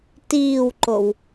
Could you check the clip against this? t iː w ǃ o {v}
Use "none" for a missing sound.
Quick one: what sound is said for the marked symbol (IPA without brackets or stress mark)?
w